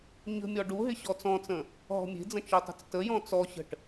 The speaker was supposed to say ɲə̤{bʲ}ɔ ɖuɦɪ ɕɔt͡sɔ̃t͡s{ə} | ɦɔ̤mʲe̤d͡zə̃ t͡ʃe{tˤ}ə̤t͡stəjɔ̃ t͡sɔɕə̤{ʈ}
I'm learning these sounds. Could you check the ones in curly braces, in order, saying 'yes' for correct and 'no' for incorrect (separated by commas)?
no, no, yes, yes